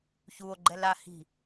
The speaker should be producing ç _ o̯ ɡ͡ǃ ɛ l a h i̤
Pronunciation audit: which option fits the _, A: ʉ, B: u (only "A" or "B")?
B